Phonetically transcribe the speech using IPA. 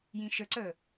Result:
j ĩ ʃ ə ǀ əː

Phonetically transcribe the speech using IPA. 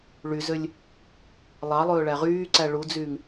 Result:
ɭ y z ø lʲ | lˠ ɑ lˠ ɵː ɭ æ ʁ yː ǀ æ ɭ u d͡z yː ŋ

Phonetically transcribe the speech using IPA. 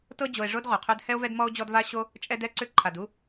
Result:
t ɤ˥ d͡ʑ o˨ e̯ ʐ o˥ d ʁ o˩ qʰ ɵ˥ d h ɛ˥ o̯ v ɛ˦ d m ɔ˥ o̯ d͡ʑ ɔ˦ d v a˥ ɕ o˥ | t͡ʃʼ ɛ˥ d ɛ˥ ǀ ʏ˥ ǃʰ a˩ d u˦

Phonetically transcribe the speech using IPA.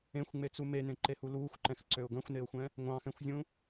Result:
ẽ xʷ ŋ͡m e t͡s u m e n ẽ ǃ e h u l uː xʷ ǃ ɛ̃ x ǀ ø ʊ̯ ɡ ɐ̃ xʷ n e ʊ̯ xʷ ɛ̃ | ŋʷ ɑ̃ x ɛ̃ xʷ zʲ ũ

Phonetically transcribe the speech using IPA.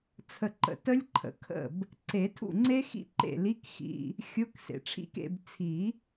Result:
t͡sʰ ə˨ ǃ ə̰˨ t ə˦˥ lʲ ǃʰ ə̰˨ kʰ ə̰˥˩ b | ǀ e˨˩˦ tʰ ṵ˥˩ ŋ͡ǀ e˦˥ x ḭ˦˥ ǃ ḛ˥˩ l i˧˥˧ k x ḭ˧˥˧ | xʲ ʊ˧˥˧ k s ḛ˨ ʈ͡ʂʰ ḭ˦˥ k ḛ˧˥˧ b t͡sʰ i˨˩˦

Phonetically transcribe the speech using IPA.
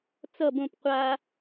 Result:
t͡s ʌ b õ p qʷ a

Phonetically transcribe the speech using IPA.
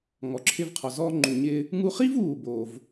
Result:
ŋ ɔ˩ ǁʰ ɪ˧ v qʰ ɔ˩ z ɔː˧ ŋ͡ǃ u˩ ɲ ɪ˧ | ŋ u˧ χ i˥ v uː˩ b oː˩ v

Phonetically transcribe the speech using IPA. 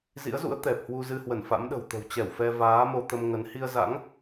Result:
z ḭ˧˥ ə̯ z ṵ˧˥ ə̯ t̪ ɛ˨˩ p̚ h w u˧ z ɨ˧ h w ə˧˩ n f a̰˧˥ m ɗ ə̤˨˩ w t̪ ə̤˨˩ w t͡ɕ ɛ˧˩ w f ɛ˧ v aː˨˦ m o˧ t̪ ə˧ m ŋ ə˨˦ n h i˧ ə̯ z a̰˧˥ ŋ

